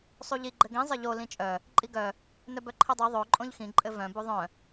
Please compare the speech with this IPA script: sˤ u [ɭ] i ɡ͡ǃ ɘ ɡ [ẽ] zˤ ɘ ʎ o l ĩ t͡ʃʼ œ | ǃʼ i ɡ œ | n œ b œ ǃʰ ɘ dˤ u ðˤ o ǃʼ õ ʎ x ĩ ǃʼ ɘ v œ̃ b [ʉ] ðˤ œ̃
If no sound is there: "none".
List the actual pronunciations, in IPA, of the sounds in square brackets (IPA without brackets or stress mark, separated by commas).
ʎ, ĩ, u